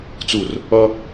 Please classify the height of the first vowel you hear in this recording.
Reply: high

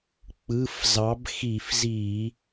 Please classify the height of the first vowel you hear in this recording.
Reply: high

